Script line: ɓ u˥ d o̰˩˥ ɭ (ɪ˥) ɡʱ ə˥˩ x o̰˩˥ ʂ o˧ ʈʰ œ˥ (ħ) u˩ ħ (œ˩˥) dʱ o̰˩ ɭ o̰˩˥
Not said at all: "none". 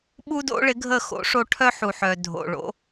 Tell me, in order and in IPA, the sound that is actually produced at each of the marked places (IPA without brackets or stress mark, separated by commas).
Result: ɪ˩˥, ħ, œ˩